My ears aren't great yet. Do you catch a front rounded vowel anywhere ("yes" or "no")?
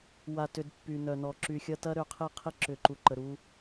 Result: yes